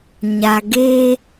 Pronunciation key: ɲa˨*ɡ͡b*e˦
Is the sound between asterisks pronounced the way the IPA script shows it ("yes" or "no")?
no